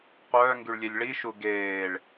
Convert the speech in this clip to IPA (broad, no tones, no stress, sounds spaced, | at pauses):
qʷ œː ŋ ɡ y ɭ lʲ e lʲ ɭ i ʃ u ɡ eː ɭ